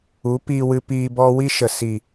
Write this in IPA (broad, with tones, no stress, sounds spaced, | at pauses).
u˨˦ p iː˧ w ɨ˧ p iː˧ b ɔ˦ w i˦ ʃ ə˨ s i˨